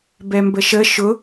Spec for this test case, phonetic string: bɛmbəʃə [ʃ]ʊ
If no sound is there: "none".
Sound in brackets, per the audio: ʃ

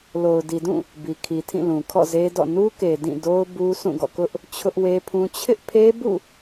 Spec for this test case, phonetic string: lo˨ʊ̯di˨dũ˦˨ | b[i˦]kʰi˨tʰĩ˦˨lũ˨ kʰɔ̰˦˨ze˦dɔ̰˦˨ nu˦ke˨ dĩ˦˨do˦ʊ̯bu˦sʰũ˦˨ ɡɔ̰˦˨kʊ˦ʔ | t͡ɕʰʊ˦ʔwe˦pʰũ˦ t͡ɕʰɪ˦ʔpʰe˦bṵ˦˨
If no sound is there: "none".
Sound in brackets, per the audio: i˨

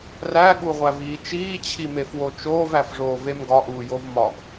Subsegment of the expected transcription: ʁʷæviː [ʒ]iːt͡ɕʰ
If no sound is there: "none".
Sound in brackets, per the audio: t͡ʃ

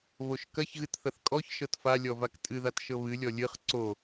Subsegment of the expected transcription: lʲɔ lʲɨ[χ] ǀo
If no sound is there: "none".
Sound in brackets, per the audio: χ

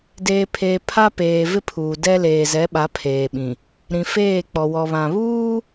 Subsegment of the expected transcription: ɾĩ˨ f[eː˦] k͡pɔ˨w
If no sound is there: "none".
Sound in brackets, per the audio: eː˦˨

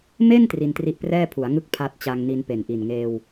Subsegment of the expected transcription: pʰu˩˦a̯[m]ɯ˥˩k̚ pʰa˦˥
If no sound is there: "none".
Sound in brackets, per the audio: ŋ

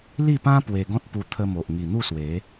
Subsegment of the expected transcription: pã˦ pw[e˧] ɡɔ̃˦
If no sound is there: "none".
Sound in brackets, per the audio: e˧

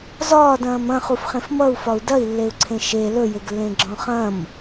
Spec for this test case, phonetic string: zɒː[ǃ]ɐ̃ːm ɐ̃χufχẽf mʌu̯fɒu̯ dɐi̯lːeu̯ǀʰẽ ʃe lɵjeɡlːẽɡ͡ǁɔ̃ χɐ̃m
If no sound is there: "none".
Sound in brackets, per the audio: d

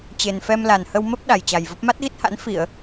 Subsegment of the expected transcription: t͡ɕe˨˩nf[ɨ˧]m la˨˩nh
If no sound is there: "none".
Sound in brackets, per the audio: ɛ˧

